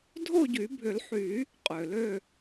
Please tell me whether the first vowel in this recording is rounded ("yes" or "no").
yes